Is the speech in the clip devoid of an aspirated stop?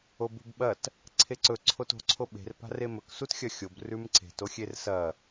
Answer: no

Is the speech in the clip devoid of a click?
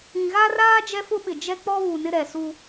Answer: yes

